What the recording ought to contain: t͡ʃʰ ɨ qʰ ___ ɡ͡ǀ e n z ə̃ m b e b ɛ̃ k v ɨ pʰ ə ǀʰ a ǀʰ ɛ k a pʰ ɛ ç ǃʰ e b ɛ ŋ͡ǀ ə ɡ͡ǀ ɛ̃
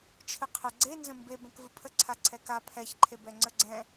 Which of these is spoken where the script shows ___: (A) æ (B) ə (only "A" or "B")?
B